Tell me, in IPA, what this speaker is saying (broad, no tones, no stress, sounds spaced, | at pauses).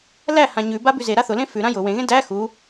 l æ h ã ɲ ʉ b a b ʉ z e ɾ a θ ʊ l ẽ f ʉ ɾ ã j ʊ w ẽ ɣ ẽ d æ x u